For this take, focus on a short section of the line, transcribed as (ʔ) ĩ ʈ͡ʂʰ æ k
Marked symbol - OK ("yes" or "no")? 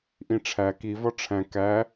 yes